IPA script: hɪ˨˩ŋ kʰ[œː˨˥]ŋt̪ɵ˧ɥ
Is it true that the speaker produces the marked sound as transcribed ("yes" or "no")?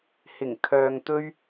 no